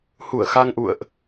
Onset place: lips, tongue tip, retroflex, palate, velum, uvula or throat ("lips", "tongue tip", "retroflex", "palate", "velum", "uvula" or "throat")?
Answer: throat